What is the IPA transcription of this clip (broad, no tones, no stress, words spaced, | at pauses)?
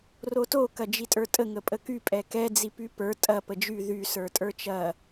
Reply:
roto kɐd͡ʒitʼə˞tʼə ŋəpʼəky pʼɛkɛ d͡zipypə˞ tʼɐ pəd͡ʒy ðy sə˞tʼə˞t͡ʃɐ